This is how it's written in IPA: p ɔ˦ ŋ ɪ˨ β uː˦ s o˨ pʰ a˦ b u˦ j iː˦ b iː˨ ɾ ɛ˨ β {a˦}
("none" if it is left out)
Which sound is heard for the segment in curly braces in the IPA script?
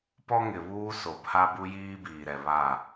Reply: a˦˨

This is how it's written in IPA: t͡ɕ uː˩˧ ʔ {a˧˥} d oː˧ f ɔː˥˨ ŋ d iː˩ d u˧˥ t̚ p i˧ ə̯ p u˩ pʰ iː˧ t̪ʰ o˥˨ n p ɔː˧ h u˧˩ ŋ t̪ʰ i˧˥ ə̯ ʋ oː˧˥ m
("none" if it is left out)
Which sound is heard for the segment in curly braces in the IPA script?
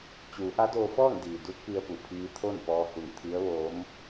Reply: a˧˥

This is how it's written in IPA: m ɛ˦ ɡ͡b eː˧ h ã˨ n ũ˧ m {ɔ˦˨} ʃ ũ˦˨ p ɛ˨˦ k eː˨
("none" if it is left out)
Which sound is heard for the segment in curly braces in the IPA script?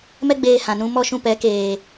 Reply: ɔ˦˨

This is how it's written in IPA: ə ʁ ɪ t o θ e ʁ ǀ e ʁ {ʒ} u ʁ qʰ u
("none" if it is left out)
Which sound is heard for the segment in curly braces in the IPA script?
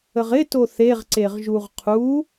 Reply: ʒ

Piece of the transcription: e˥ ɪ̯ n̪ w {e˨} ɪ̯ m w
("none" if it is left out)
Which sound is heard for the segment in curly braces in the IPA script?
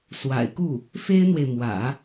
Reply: e˨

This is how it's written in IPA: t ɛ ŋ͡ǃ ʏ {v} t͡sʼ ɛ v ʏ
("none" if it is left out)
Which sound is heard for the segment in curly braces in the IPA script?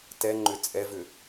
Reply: none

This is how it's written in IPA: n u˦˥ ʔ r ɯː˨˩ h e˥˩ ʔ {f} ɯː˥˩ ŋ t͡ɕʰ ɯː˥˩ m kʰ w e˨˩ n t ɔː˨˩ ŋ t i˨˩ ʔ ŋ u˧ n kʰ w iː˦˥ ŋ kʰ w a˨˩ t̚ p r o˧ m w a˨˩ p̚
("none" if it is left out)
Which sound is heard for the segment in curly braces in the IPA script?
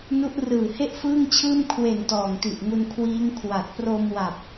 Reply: f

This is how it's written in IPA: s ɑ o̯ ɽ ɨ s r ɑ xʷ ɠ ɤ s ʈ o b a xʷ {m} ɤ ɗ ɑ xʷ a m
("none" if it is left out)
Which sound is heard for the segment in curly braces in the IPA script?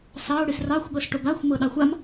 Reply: m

